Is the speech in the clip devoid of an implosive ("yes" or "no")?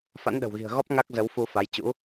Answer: no